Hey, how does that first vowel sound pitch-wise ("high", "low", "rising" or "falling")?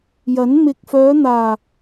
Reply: rising